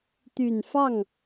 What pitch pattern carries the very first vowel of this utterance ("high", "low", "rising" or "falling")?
low